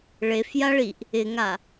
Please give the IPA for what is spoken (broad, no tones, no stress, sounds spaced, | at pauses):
ɭ e f j a ɭ i ʔ | ɪ ŋ a